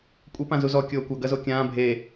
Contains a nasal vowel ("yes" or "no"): yes